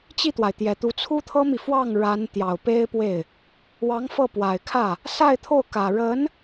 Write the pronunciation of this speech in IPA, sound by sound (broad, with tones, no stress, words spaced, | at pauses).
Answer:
t͡ɕi˥˩t̪wa˩ɪ̯ t̪jɛ˨˩t̪u˧˥ t͡sʰu˥t̪ʰɤ˥mi˨ fwɑ˥˩ŋ ɻa˧˥n t̪jɑ˨˩ʊ̯ pe˥ɪ̯pwe˥˩ɪ̯ | wɑ˧˥ŋfɤ˥˩pwa˨˩ɪ̯kʰä˥˩ | sa˥˧ɪ̯t̪ʰo˥˩ʊ̯ kä˨˩ ɻə˧˥n